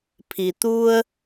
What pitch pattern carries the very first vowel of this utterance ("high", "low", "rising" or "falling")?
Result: low